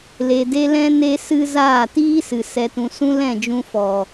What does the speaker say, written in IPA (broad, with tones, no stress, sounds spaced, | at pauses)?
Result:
l e˧ d e˦ l ɛ̃˦ n e˦ s ɨ˦ z aː˦˨ t iː˦ s ɨ˨ s ɛ˨ t ũ˨ s ũ˦ l ɛ̃˦˨ d͡ʒ ũ˧ f ɔ˨